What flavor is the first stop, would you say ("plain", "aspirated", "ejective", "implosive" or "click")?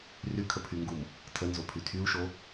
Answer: aspirated